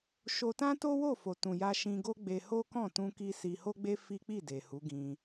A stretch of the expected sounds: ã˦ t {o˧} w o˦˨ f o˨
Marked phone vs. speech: incorrect: o˦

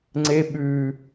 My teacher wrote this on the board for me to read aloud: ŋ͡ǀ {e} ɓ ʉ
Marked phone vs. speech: correct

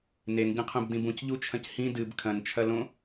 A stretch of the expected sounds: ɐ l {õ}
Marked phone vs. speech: correct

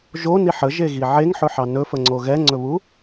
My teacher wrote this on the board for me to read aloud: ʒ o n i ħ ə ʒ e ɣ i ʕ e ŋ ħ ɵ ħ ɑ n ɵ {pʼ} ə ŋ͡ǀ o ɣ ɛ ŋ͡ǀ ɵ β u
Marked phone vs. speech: incorrect: f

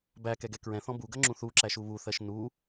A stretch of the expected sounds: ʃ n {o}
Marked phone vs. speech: incorrect: u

